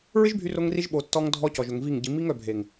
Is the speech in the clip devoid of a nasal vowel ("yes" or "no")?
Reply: yes